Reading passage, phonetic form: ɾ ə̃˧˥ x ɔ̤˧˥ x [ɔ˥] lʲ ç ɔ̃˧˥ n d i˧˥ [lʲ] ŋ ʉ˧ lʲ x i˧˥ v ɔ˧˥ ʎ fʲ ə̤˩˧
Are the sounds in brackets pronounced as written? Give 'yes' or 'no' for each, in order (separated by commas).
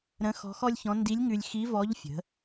yes, yes